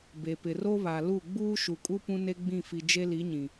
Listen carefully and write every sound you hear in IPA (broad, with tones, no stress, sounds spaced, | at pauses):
b e˨ p ɪ˨ r o˦ β a˨ l u˦˨ ɡ͡b uː˦ ʃ u˨ kʼ u˦ p ũ˦ n e˦ ɡ͡b ĩ˦˨ f i˨ d͡ʒ e˦ l i˨˦ ɲ ĩ˨